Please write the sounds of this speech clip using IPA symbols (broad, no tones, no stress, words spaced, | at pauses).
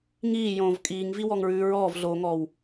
ŋiːjõːv kʼiːŋviwɔŋɹʉː ɹɔːvɮoːŋɔːw